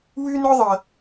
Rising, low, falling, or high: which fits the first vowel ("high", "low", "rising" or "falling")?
high